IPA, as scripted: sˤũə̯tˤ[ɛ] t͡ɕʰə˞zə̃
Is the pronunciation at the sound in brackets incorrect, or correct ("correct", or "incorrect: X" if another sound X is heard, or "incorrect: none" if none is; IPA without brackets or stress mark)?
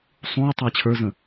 incorrect: æ